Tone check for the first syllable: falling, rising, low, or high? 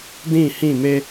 falling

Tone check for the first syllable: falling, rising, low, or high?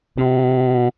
high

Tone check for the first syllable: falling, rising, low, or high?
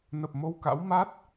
low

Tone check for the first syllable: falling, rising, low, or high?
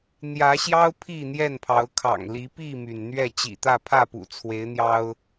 rising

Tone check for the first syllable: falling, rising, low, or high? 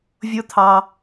high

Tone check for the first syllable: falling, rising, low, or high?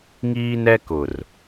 high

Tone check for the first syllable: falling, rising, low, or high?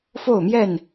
falling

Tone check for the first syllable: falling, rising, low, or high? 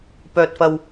low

